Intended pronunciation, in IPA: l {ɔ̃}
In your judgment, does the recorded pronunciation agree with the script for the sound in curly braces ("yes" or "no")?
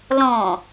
yes